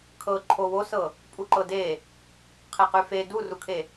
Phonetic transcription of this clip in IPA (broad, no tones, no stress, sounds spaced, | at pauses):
kʰ ɤ ǃʰ o w o s ɤ | pʼ u ǃ ɤ d e | qʰ e q y f e d u r u kʰ e